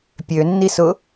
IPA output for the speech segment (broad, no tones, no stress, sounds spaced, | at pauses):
pʲ ø nː i s ʊ